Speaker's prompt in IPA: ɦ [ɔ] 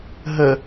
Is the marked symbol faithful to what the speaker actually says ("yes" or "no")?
no